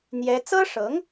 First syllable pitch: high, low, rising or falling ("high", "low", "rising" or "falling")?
high